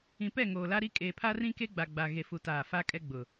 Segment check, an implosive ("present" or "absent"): absent